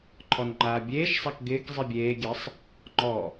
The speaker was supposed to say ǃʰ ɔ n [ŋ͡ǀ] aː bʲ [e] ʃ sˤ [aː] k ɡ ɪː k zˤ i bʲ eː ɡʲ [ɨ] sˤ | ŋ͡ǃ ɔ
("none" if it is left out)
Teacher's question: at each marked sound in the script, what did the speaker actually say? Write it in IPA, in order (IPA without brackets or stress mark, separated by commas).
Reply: ŋ͡ǃ, eː, a, ɛ